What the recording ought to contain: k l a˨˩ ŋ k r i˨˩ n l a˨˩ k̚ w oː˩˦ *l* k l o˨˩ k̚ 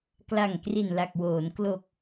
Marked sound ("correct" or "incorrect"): incorrect